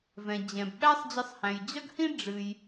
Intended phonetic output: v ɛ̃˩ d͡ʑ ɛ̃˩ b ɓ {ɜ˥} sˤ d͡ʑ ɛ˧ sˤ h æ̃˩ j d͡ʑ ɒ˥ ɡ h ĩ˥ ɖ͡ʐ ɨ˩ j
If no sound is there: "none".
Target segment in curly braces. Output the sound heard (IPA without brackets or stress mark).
æ˥